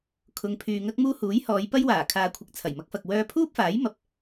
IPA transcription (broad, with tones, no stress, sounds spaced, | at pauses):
kʰ ʊ˨˧ ŋ pʰ yː˨ ŋ ɐ˥ k̚ m uː˥ h uː˨˥ j h ɔː˨˧ j p ɐ˥ j w aː˨˩ kʰ aː˨ kʷʰ ɪ˨ k̚ t͡sʰ ɐ˨˩ j m ɐ˧ k̚ f ɐ˨ k̚ w œː˧ pʰ uː˥ p̚ f aː˨˥ j m ɐ˨ p̚